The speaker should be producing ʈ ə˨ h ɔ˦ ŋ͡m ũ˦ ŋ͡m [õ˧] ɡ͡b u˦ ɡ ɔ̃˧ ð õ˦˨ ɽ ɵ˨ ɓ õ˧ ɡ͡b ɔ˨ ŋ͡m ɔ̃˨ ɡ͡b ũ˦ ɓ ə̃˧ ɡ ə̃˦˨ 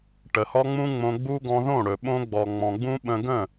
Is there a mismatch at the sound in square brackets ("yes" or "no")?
no